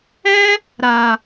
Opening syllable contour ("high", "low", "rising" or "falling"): high